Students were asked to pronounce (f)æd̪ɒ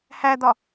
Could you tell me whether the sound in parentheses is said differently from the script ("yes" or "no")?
yes